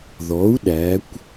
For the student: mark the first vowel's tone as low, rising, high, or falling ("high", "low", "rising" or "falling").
rising